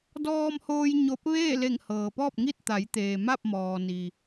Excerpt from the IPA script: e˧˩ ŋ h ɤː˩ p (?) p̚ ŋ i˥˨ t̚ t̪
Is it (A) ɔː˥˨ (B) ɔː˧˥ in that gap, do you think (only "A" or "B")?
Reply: A